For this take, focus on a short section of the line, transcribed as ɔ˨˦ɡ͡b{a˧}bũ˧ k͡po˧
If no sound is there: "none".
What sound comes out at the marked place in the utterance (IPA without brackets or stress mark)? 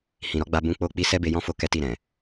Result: a˧